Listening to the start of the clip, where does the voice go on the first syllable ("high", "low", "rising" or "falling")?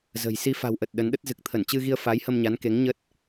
low